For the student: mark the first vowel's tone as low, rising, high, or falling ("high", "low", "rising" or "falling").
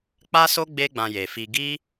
high